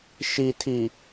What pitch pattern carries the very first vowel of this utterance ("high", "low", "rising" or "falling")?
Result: low